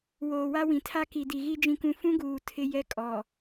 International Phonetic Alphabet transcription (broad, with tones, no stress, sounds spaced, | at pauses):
w oː˨ w a˦ w ĩ˨ tʰ a˦ k i˨ d i˨ ɣ i˦ d͡ʒ ĩ˦ k ũ˦ f ũ˦ ɡ uː˨ tʰ ɪ˦ j ɛ˦ kʼ ɔ˨